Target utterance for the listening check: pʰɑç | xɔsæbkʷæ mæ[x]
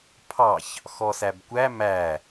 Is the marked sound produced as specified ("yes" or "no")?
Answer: no